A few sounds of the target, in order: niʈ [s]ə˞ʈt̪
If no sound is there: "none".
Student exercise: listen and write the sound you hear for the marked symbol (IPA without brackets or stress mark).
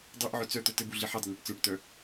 t͡s